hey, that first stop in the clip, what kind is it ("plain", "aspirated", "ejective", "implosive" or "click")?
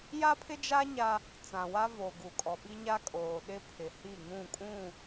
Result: aspirated